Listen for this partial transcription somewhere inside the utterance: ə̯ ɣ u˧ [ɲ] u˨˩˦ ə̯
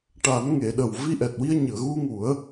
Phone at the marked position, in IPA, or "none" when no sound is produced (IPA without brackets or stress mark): ŋ